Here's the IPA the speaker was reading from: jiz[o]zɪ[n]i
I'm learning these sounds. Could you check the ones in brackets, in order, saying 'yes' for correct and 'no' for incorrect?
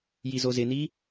yes, yes

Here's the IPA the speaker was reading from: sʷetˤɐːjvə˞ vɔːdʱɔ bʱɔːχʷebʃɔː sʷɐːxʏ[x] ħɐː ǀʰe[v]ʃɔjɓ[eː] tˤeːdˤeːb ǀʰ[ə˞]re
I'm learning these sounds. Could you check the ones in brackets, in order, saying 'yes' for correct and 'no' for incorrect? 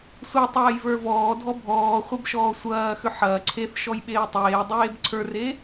no, no, yes, yes

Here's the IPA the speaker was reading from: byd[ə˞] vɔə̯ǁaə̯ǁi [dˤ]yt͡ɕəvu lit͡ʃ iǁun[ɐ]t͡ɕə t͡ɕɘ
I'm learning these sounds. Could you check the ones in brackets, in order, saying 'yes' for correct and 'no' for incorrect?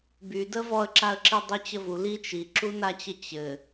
no, yes, no

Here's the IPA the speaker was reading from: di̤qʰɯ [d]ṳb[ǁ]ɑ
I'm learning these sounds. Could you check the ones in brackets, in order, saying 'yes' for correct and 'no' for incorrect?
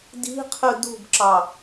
yes, yes

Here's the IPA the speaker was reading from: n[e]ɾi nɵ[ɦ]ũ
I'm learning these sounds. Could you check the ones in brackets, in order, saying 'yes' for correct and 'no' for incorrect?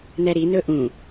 no, no

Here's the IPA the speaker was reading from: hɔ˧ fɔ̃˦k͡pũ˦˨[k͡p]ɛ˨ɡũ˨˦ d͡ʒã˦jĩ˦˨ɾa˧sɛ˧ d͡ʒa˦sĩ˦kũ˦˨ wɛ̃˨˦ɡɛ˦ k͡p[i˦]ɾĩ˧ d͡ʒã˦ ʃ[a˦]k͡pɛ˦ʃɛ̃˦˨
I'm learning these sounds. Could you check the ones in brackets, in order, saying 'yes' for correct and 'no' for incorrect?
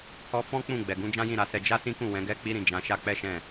no, yes, yes

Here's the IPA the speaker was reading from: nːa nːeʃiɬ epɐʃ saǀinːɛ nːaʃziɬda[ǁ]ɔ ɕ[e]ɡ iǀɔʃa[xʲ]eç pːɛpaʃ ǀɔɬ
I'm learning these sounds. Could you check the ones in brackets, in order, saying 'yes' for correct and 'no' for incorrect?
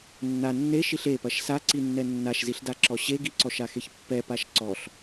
yes, yes, no

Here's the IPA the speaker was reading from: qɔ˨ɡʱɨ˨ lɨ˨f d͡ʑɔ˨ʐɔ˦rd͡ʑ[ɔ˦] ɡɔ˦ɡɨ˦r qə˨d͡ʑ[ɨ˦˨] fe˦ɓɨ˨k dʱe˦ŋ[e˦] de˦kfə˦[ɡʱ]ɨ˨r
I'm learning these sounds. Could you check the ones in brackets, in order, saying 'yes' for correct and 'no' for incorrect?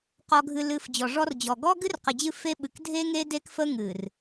no, yes, yes, no

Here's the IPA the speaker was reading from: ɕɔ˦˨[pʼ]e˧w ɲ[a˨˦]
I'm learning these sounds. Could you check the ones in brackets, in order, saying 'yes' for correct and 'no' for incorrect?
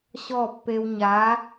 no, yes

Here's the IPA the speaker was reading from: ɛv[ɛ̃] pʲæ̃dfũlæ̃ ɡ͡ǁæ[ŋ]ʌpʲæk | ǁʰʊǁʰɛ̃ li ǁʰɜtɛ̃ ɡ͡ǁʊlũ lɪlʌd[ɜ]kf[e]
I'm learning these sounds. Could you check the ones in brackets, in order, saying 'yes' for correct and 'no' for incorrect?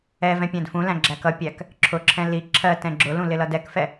yes, no, no, no

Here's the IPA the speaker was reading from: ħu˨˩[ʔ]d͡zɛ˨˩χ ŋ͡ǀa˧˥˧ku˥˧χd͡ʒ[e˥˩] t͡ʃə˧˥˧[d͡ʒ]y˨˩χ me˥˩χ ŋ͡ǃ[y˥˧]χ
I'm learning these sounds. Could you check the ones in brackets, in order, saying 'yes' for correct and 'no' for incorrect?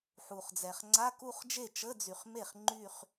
no, yes, no, yes

